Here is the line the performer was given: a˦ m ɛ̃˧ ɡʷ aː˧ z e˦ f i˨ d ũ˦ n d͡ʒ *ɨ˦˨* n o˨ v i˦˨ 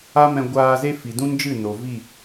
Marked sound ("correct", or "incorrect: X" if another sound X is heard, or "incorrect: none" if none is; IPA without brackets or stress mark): correct